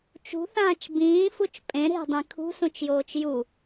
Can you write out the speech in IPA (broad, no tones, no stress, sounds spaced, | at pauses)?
t͡ʃ ṳ θ ãː t͡ʃ b ĩː f u t͡ʃ pʼ ẽ ɾ e̤ dˤ ĩ kʰ ṳ s ũ t͡ʃ j oː t͡ʃ j u